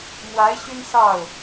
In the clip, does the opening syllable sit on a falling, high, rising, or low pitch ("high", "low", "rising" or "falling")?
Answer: rising